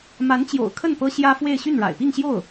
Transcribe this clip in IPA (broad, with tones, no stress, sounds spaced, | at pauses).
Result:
m a˧˥ n t͡ɕ j o̰˨˩ ʊ̯ kʰ ə˥˩ n p ɤ˥ ɕ j ä˥ f w e˥˧ ɪ̯ ɕ y˥˩ n ɻ a̰˨˩ ɪ̯ p i˥˧ ŋ ɕ j o˥˩ ʊ̯